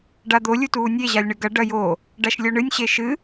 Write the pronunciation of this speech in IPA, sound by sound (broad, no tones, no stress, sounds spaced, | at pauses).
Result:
ɖ a d̪ o lʲ u t uː nʲ e ʑ a lʲ ɳ ɨ ɡ ɐ ɖ ɐ j o | ɖ a ʃ lʲ o ɳ ɨ nʲ ɕ e ʃ ɨ